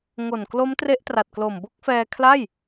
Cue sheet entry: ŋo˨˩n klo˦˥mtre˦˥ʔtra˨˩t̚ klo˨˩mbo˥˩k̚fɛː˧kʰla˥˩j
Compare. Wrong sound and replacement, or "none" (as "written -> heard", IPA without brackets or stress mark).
none